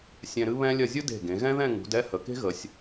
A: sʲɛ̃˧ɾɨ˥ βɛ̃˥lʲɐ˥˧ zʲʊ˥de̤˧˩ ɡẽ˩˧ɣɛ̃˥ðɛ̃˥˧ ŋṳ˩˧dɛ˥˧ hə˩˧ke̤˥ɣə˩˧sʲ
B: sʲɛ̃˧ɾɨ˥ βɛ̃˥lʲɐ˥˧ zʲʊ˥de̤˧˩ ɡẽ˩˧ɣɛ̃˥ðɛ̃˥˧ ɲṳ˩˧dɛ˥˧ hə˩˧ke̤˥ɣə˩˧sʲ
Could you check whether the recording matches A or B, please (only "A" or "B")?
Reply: A